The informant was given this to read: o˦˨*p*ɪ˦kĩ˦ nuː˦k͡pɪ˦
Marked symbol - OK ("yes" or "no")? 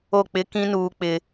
no